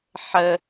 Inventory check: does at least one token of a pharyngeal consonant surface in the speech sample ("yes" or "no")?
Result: yes